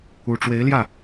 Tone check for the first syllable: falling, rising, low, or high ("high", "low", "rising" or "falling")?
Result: low